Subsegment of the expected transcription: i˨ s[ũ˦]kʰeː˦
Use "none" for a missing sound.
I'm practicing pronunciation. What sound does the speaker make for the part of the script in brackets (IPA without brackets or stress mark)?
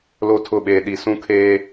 ũ˦